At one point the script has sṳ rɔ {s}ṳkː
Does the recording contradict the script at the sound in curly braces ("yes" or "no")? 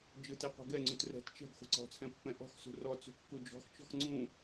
yes